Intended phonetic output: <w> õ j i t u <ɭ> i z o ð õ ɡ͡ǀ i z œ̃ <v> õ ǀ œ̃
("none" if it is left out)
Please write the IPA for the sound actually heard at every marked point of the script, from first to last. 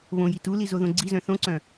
β, l, θ

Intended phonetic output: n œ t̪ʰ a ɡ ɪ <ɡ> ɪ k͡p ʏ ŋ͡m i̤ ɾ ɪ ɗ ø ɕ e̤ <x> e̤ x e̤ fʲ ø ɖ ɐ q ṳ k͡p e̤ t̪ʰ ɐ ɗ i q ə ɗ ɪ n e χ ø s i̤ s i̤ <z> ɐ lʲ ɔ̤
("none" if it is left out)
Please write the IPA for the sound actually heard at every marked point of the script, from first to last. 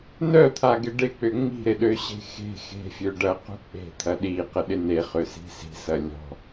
ɖ, x, s

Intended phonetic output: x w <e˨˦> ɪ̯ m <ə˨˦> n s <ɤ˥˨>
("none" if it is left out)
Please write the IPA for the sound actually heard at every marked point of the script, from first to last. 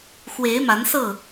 e˨˦, a˨˦, ɤ˥˨

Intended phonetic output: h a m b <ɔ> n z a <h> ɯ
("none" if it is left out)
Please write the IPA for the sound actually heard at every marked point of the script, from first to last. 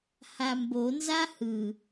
o, h

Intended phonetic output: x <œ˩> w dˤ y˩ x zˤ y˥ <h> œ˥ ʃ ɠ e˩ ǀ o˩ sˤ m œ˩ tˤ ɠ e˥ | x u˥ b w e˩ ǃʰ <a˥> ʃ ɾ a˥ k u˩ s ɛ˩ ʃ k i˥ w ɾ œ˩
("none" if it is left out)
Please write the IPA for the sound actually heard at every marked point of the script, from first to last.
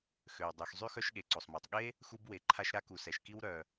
ø˩, x, a˥

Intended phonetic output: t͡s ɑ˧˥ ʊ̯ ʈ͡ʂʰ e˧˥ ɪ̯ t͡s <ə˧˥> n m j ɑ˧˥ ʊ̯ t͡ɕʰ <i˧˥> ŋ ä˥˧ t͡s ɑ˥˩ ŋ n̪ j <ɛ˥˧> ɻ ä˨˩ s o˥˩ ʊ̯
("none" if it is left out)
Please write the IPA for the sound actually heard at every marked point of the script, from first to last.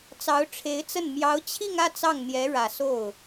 ə˥˩, i˥˧, ɛ˧˥

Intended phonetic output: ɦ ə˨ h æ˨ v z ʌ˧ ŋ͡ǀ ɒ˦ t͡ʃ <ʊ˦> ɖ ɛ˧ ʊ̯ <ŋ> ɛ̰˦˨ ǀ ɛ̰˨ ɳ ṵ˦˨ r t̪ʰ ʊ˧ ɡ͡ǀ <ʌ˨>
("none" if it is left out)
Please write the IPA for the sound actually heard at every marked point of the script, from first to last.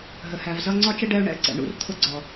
ə˦, ɳ, ɔ˨

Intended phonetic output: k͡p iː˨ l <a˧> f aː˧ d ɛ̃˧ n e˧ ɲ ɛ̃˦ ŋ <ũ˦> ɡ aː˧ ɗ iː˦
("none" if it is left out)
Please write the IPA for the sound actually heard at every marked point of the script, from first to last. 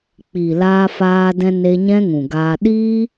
aː˧, ũ˨

